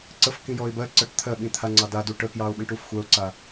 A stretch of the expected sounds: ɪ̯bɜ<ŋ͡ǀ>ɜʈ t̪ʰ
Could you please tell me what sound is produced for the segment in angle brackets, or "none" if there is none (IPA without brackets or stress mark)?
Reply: ǀ